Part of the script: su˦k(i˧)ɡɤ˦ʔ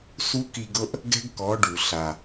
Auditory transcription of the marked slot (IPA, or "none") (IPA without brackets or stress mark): i˧